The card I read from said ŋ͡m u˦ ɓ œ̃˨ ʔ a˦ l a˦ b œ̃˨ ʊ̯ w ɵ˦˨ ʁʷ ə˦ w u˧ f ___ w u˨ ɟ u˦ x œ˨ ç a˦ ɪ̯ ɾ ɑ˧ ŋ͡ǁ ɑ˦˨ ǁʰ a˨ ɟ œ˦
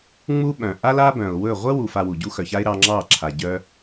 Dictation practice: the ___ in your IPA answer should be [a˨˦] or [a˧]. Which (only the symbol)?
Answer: a˧